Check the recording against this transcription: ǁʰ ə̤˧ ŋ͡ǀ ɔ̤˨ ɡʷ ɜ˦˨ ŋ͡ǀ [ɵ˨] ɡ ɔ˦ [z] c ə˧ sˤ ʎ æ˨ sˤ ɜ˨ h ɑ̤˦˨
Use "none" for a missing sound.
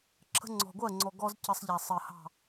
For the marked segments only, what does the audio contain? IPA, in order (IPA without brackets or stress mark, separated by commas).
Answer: ɔ˨, z